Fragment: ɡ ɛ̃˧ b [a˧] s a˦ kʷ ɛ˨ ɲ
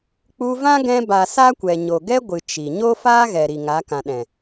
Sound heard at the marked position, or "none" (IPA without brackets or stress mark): a˨